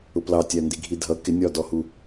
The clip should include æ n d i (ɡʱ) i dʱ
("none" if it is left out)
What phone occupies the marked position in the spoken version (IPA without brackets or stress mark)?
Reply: ɡʱ